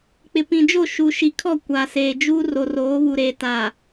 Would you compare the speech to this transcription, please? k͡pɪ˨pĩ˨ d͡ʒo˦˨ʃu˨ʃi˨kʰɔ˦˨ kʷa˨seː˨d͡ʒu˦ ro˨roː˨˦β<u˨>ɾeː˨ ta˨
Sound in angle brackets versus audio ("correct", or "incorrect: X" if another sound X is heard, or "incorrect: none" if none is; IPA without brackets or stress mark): correct